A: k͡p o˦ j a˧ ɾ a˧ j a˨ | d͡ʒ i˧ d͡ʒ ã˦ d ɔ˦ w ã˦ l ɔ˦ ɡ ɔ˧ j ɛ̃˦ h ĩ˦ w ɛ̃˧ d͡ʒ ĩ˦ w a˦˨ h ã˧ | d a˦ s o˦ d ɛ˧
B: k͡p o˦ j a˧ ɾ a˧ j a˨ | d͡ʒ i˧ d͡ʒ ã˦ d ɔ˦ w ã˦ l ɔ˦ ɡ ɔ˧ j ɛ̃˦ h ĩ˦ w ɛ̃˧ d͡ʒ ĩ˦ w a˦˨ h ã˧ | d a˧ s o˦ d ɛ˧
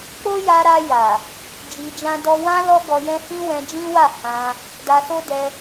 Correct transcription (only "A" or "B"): B